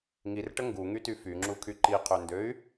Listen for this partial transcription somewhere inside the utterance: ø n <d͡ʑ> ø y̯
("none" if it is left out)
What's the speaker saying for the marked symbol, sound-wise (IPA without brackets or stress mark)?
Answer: d